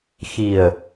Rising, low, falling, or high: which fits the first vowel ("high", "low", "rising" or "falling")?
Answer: low